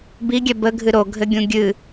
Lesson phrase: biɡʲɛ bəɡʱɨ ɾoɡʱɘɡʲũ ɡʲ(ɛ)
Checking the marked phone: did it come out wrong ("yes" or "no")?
yes